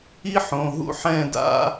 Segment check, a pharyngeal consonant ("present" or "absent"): present